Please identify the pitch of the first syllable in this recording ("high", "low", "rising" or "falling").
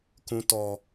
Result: high